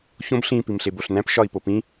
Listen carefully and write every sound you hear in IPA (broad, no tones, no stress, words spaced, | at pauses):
çõb ɬĩ pimɬeboɬnæ̃p ʃɒi̯popĩ